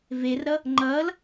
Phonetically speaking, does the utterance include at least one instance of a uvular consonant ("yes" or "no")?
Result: no